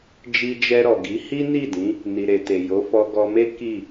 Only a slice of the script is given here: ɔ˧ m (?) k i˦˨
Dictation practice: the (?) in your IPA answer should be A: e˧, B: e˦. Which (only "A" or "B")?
B